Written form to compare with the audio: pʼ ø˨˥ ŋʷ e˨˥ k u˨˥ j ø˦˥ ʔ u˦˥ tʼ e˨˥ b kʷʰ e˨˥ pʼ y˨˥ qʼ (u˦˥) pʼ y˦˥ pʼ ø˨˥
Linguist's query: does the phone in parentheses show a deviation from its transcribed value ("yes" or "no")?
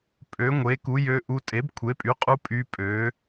no